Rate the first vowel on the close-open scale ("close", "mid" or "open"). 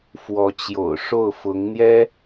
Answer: mid